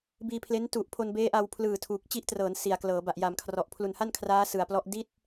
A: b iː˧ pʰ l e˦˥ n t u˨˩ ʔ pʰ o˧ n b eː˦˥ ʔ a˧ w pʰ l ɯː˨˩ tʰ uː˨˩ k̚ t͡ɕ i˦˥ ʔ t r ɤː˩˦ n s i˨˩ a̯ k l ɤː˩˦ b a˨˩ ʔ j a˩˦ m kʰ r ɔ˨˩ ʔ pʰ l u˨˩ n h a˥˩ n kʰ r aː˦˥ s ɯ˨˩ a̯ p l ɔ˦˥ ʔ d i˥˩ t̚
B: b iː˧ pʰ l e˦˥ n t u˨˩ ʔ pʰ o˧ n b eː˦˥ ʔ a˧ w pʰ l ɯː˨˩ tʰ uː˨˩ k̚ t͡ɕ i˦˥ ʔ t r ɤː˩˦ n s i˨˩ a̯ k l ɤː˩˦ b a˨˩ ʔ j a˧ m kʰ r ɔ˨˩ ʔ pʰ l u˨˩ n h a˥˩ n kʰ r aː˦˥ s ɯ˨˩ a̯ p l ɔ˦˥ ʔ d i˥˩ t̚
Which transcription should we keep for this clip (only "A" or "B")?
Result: A